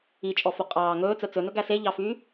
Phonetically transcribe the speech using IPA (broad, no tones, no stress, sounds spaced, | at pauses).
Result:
i t͡ʃʼ ɔ f o qʼ ɑː ŋ ɵː t͡s œ t͡s ɵ n ɵ ɡ æ s e ʎ ɑ f yː